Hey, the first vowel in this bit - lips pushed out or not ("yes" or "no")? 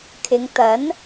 no